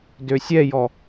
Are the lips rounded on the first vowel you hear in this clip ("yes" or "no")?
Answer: yes